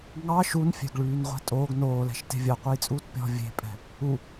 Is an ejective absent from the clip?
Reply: no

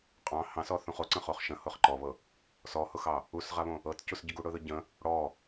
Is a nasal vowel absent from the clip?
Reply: no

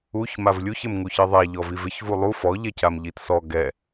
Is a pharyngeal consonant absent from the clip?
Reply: yes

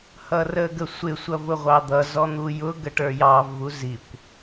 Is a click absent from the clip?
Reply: yes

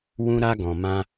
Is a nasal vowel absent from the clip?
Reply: no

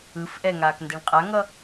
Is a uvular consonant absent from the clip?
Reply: no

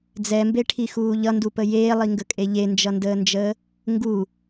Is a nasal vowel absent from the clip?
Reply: yes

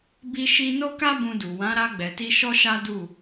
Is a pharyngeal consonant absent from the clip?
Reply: yes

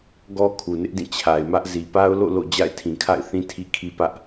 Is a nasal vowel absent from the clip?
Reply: no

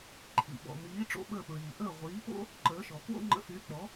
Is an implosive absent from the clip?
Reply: no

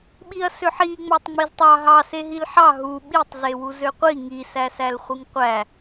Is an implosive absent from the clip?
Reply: no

